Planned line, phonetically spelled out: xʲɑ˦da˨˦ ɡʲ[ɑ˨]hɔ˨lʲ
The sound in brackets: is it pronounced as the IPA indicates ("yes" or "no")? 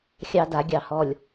yes